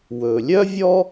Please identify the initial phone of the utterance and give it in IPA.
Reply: w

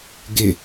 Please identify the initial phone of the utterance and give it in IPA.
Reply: ɡ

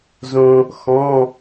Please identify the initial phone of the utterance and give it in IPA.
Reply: z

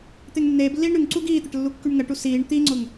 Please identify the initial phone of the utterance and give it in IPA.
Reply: t̪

